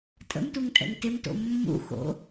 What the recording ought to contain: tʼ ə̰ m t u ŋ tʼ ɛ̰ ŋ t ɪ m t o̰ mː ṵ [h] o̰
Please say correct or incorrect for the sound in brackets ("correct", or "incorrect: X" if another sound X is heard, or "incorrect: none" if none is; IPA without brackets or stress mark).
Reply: incorrect: x